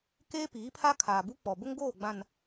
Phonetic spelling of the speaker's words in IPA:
keː˦piː˨˦pʰa˦ kʰaː˨bu˦k͡pɔ˨ bʊ˦ŋɡoː˦˨ɡ͡bã˨n

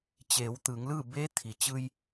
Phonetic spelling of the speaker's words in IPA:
t͡ɕeː˩˧wt̪ɯː˩˧ŋlɯː˥˨ beː˧˥t̪ʰi˩t͡ɕɯː˧j

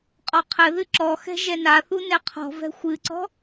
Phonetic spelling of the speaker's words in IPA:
qʼɔqʰɘðɨ ǁɔxɛ̤ ʒɛnaθu nɛqʰɔ̤vɛ̤ xʷɨǀɔ̤

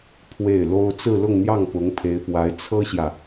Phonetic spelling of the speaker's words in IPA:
pʰwe˥˩ɪ̯lo˥ʊ̯ t͡sɹ̩˥˧lʊ˥˧ŋn̪jɑ˥˩ŋpʊ˧˥ŋ pʰe˧˥ɪ̯pwa˧˥ɪ̯ t͡sʰɤ˥ɕjä˨

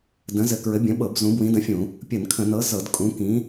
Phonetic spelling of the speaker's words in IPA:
də̃˨˥zɘ˧˩˧kɹɘ˨˥ bʲə̃˨˥ɓɤ˧˩˧b zũ˨˥ bwĩ˨˥də̃˨˥fʲũ˧˩˧ | pʲə˧˩˧nkʰə̃˧˩˧nɤ˨˥ zɤ˧˩˧dkʼũ˨˥ kĩ˨˥

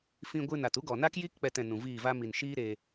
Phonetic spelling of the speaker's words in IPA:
fĩ˧ɡʷɨ˧na˨t u˦ɡɔ˨na˦kji˦k k͡pɛ˧tɛ̃˨nũ˨ viː˦˨va˦ mi˨n ʃiː˦ɾeː˧

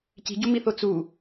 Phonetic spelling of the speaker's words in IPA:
ci̤ɟumiθo t͡su

